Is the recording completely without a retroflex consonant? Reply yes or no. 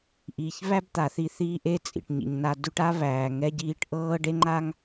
no